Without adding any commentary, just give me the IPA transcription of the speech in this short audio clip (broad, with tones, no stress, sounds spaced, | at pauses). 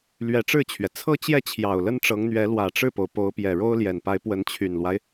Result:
l ɥ ɛ˧˥ ʈ͡ʂ ɻ̩˥˩ t͡ɕʰ ɥ ɛ˩ t͡sʰ ɤ˥˧ t͡ɕ j ɛ˥˩ t͡ɕʰ j ɑ˨˩ ʊ̯ l ə˥ n ʈ͡ʂ ɤ˧˥ ŋ n̪ ɥ ɛ˧˥ l w ä˨˩ ʈ͡ʂ ɻ̩˥˩ p o˩ ʊ̯ p o˧˥ ʊ̯ p j ɛ˨˩ ɻ o˥ ʊ̯ l j ɛ˨˩ n p a˧˥ ɪ̯ p w ə˧˥ n t͡ɕʰ y˨˩ n l w a˦ ɪ̯